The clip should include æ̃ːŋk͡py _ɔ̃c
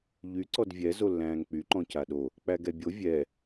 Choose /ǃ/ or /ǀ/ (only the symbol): ǃ